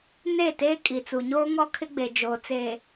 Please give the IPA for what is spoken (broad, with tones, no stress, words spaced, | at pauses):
ne˦˨teː˦ kʼi˨t͡su˨ɲoː˦ ŋɔ˦kʰɪ˦ɡ͡be˨ d͡ʒoː˨t͡seː˨